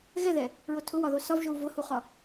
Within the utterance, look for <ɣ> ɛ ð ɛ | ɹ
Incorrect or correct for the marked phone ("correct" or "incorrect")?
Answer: correct